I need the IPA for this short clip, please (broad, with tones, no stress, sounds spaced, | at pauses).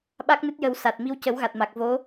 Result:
ɓ a˦˥ k̚ n ɨ˦˥ t̚ j ə˨˩˦ w s a˨˩ t̚ m i˧ w c ə˨˩˦ w ɣ a˨˩ t̚ m a˨˩ k̚ v o˧˥